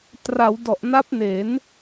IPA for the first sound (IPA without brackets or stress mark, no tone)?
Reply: t